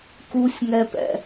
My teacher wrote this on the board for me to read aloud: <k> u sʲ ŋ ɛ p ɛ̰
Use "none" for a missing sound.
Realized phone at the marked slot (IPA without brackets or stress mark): k